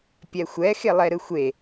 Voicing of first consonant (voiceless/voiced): voiceless